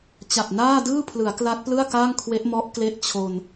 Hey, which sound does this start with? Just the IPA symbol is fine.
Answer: t͡ɕ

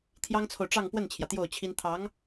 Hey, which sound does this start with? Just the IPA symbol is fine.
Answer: t̪ʰ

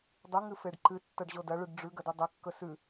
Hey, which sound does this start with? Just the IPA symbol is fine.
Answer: dˤ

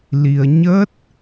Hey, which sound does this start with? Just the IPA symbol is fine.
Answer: l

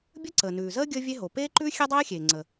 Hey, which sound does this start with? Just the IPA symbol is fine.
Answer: bʲ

